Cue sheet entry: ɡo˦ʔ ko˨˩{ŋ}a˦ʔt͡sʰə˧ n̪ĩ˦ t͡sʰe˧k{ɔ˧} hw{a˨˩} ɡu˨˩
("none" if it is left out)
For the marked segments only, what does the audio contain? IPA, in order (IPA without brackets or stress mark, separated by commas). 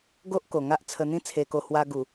ŋ, o˧, a˧